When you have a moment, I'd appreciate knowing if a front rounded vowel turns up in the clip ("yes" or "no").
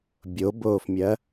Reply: no